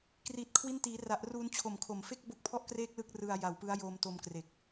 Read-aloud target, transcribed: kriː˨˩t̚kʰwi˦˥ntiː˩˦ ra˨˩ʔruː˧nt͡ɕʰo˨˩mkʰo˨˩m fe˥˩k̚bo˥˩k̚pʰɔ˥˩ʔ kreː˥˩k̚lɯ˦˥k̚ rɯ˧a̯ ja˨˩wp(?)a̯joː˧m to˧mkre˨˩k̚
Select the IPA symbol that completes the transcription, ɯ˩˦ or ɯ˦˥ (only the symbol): ɯ˦˥